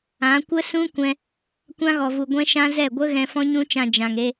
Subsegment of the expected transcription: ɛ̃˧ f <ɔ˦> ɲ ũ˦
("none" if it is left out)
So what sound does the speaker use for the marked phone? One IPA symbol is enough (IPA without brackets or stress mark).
ɔ̃˦